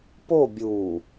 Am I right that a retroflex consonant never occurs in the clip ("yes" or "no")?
yes